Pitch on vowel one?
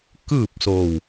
falling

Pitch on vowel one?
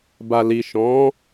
low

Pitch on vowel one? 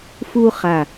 high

